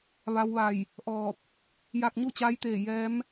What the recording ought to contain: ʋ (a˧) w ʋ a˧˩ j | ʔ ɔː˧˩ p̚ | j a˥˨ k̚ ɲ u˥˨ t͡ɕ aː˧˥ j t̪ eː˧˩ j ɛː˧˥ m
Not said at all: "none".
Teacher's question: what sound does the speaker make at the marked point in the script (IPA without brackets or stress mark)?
a˧